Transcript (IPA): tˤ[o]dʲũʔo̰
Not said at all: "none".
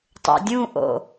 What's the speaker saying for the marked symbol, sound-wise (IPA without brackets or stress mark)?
o̰